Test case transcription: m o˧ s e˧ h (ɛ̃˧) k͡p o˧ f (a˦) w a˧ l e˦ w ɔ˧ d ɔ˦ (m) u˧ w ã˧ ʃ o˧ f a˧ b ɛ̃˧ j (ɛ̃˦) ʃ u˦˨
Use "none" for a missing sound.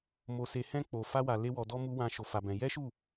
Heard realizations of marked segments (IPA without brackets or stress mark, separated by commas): ɛ̃˦, a˦, m, ɛ˦